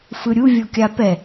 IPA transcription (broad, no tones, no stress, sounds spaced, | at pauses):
f ɯ ɾʲ u vʲ o kʲ a p ɛ